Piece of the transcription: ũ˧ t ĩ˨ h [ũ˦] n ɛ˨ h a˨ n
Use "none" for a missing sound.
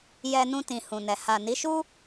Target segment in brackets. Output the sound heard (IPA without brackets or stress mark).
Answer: ũ˨